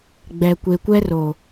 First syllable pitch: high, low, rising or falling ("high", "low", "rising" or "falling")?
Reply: low